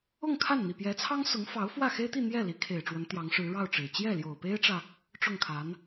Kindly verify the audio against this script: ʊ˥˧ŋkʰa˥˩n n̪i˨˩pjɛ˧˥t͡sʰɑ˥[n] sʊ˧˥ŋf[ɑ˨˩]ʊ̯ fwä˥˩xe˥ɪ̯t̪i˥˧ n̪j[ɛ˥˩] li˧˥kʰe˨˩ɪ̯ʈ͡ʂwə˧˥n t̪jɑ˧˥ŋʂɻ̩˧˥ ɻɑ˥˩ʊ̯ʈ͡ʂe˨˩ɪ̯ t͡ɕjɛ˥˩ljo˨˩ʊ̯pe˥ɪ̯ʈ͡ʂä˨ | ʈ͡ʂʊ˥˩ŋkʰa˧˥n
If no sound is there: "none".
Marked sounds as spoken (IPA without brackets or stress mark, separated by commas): ŋ, ɑ˧˥, ɛ˥˩